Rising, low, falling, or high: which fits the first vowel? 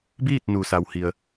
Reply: falling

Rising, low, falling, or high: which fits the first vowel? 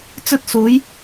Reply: high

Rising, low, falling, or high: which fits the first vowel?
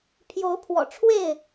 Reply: rising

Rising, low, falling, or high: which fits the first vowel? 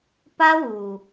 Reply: high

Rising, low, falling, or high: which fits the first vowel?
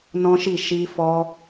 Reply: high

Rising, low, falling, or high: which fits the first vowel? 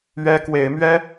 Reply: high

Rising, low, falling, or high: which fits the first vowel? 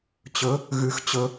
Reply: rising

